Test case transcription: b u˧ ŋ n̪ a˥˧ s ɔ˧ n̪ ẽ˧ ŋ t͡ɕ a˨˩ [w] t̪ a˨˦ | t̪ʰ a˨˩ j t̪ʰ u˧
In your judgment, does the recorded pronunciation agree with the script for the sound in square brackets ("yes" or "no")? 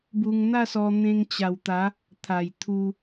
yes